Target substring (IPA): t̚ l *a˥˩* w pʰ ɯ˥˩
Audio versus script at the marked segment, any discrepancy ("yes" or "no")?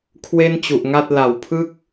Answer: yes